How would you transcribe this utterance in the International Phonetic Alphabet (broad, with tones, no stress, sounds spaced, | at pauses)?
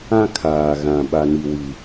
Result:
ã˦ kʰ aː˨ ɣ ã˨ ɓ a˦ n i˦ w i˦